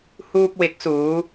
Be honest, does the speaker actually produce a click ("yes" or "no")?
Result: no